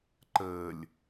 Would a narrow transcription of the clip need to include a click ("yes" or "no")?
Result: yes